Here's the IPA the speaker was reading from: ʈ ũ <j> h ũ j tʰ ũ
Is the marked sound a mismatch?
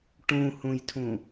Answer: yes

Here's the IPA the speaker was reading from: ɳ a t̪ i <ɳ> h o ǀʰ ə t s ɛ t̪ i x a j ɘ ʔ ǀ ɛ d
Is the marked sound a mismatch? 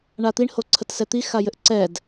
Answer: no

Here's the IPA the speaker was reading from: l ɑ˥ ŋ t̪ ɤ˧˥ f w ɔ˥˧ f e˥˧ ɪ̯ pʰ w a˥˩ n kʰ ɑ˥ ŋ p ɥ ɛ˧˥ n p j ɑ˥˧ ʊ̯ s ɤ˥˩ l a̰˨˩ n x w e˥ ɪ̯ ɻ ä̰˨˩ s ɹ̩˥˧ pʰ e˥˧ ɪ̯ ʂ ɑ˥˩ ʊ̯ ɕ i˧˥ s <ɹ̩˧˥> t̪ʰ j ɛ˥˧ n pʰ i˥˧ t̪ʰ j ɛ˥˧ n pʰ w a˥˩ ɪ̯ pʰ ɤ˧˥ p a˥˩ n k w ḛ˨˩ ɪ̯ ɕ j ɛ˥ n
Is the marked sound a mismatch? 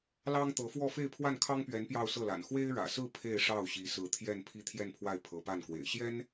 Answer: no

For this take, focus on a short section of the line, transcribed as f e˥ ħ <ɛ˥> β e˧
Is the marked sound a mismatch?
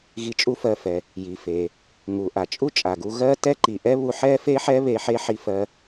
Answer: no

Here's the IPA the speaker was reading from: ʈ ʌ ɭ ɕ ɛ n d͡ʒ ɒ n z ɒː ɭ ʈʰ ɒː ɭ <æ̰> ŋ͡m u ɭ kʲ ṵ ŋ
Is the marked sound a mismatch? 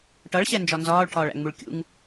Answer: no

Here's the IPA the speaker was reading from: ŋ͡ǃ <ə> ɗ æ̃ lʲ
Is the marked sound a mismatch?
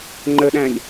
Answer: no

